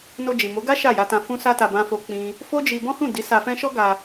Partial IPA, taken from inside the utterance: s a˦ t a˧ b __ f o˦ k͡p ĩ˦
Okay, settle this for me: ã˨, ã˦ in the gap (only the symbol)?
ã˦